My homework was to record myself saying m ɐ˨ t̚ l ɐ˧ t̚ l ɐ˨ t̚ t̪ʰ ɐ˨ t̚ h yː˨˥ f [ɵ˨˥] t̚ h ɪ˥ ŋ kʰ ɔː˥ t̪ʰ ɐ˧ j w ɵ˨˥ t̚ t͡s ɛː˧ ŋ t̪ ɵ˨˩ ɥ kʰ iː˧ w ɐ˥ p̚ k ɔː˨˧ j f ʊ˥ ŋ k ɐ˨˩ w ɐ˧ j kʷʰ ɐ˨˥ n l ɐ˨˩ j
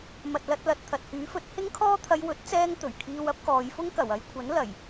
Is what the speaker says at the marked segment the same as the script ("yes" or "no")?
yes